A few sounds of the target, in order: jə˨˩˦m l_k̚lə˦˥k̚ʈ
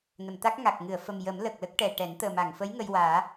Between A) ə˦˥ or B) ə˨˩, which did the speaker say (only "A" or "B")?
B